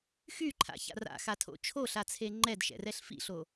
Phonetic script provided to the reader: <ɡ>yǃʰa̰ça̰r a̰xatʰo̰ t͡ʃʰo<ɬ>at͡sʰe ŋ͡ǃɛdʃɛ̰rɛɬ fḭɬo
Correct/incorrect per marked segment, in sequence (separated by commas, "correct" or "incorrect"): incorrect, correct